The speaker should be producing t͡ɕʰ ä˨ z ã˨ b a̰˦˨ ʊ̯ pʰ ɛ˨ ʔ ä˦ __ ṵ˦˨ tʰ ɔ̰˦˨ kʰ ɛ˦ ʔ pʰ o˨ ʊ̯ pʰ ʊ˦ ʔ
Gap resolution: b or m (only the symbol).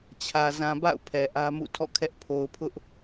m